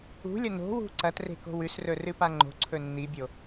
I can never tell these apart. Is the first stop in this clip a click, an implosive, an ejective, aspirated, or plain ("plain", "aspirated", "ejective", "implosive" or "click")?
click